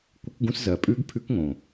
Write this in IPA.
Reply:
kʷ ɪ˦˥ k ɡ ũ˦˥ s z ɜ˨˩ pʼ ʉ˦˥ ɡ pʰ ʉ˦˥ k ŋ õ˨˩

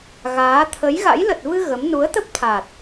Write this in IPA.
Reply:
ɣ aː˨˦ t̪ʰ ə˨˦ j ɣ a̰˧˥ j l ə˨˩ t̚ v ɨ˧ ɣ ə˨˦ m n u˨˦ ə̯ t̪ ə˦˥ p̚ t̪ʰ a˨˩ t̚

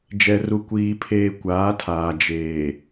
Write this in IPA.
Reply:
d͡ʒ ɛ˨ r u˨ kʷ iː˨ pʰ eː˨ kʷ aː˨˦ tʰ aː˨ d͡ʒ eː˨

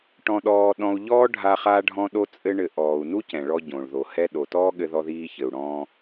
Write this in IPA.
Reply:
ʈ ɔ̃˧ ɗ ɔː˧ ɗ ɔ̃˧ u̯ ʎ ɔː˥ ɖʱ a˧ χ a˥ ɖʱ ɔ̃˥ ɗ o˥ t͡sʼ ɘ˥ ɳ ɘ˧ ʔ ɔː˩ u̯ n u˥ c ɛ̃˩ ɭ ɔ˧ ɟ õ˩ ɭ ð o˩ h ɛ˥ ɗ o˩ t ɔː˥ ɠ ɘ˧ ð ɔ˧ ð iː˧ ç ɘ˩ u̯ ɽ ɔ̃ː˧

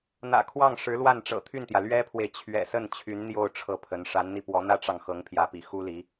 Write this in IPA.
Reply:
n̪ ä̰˨˩ kʰ w ɑ˥˩ ŋ ʂ ɻ̩˧˥ l w a˥˩ n ʈ͡ʂ ɤ̰˨˩ t̪ʰ y˥˩ n t̪ j ä˩ l ɥ ɛ˥ pʰ w e˨ ɪ̯ t͡ɕʰ ɥ ɛ̰˨˩ s ə˥˩ n t͡ɕʰ y˧˥ n n̪ j o˥˧ ʊ̯ ʈ͡ʂʰ ɤ˥˩ pʰ ə˧˥ n ʂ a˧˥ n n̪ i˧ p w ɔ˧˥ n̪ ä˥ ʈ͡ʂ ɑ˨ ŋ x ɤ˧˥ ŋ pʰ j ä˧˥ p ḭ˨˩ x u˥ l i˧˥

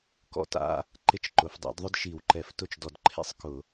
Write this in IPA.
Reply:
k ɔ̰˥ t a̰˧˥˧ | ǃ ɪ˥˩ t͡ʃ ǃ ʊ˩˥ f dˤ ḛ˩˥ d ðˤ ʊ˥ d ʃ i˧˩˧ w ǃ ɛ˧˩˧ f t ʊ˥˩ t͡ʃ d ɔ˧˩˧ d ǃʰ ḛ˥ sˤ k ʊ˧˩˧

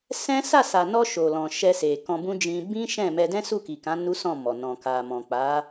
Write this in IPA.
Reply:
s ɛ̃˦ s a˦˨ s a˨ n ɔ˧ ʃ o˨ l ɔ̃˨ ʃ ɛ˧ s e˨ k ɔ̃˧ b ũ˦ d͡ʒ ĩ˧ b ĩ˦ ʃ ɛ̃˦˨ m ɛ˧ d ɛ̃˦ s u˦˨ k i˨ k ã˨˦ n u˦ s ɔ̃˦˨ m ɔ˨ n ɔ̃˨ k a˨ m ɔ̃˨ k͡p a˨˦

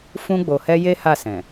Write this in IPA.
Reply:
f ũ˧ ɡ͡b o˨ h ɛ˧ j e˦ h a˦˨ s ɛ̃˨

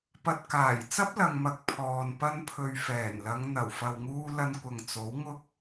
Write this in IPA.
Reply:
p ɐ˨ t̚ k aː˨˩ j t͡s ɐ˥ p̚ l ɐ˨ ŋ m ɐ˨ k̚ pʰ ɔː˨ n p ɐ˧ n pʰ ɵ˨ ɥ f ɛː˨˩ n l ɐ˨˧ ŋ n̪ ɐ˨˩ w f ɐ˨ w ŋ uː˧ l ɐ˧ n kʷ ɐ˨ ŋ t͡s o˨˥ w ŋ ʊ˥ k̚

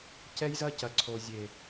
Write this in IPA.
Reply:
c ɛ˦ j z ɐ˦ c ɐ˨ ǀʰ o˨ zʲ e˨

